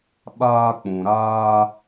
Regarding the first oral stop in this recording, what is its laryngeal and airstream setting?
implosive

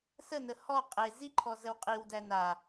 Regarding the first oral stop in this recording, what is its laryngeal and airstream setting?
ejective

